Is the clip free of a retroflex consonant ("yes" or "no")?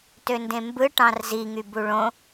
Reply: no